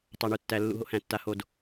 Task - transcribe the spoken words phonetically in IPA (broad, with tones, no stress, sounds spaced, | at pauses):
tˤ a˨ ɳ u˨ tː æ˨ lː ṵ˨ ɦ o̰˦ h æ̃˨ tː a˨ h o˨ d